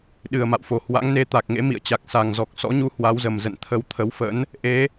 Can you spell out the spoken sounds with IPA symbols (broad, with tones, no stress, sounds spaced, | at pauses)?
ɗ ɨ˨˩ ə̯ m a̰˧˨ w f o˨˩ h w a̰˧˥ ŋ n e˧ t̪ a˨˩ k̚ ŋ ḛ˧˥ m ḭ˧˨ ə̯ t͡ɕ a˨˩ k̚ s a˨˩ ŋ z ɔ˨˩ k̚ s ɔ̰˧˥ ɲ u˨˦ h w a˨˦ w z ə˨˩ m z ə̰˧˨ n t̪ʰ ə˧ w t̪ʰ ə˨˦ w f ə̰˧˥ n | ʔ e˨˦